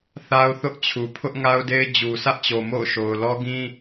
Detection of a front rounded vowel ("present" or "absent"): absent